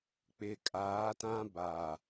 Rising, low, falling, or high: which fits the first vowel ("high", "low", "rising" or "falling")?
low